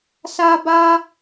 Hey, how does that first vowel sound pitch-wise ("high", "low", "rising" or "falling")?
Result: high